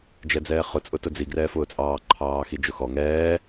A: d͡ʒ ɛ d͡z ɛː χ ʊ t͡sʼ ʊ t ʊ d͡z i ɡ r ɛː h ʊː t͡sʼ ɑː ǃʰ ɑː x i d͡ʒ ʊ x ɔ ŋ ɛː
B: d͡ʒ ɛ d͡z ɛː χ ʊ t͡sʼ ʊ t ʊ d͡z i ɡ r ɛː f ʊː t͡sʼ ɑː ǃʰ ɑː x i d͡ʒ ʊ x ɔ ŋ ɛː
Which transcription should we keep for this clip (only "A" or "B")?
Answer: B